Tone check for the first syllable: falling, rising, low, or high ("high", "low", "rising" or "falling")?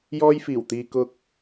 high